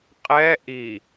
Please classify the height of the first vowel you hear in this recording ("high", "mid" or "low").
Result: mid